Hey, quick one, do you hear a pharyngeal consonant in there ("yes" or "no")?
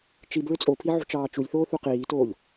yes